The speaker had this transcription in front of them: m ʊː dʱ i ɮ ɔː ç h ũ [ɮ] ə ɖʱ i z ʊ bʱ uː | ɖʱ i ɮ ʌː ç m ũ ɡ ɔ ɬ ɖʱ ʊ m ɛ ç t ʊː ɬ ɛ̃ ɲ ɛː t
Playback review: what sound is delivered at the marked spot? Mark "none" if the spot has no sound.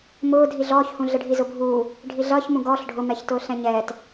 ɮ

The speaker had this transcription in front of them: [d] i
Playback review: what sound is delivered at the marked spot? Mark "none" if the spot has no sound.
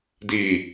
d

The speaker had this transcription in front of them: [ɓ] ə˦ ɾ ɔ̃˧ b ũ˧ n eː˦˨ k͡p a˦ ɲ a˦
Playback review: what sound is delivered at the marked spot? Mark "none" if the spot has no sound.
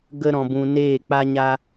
ɡ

